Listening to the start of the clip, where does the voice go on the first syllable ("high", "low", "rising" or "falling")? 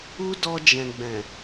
high